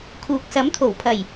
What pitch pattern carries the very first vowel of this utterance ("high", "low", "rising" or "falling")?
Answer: low